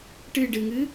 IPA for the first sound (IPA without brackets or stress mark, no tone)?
ʈ